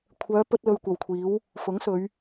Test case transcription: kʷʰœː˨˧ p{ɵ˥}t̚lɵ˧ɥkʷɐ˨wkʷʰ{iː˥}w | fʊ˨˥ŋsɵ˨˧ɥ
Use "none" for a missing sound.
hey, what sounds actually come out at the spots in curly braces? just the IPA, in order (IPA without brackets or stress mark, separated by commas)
ɵ˥, iː˨˥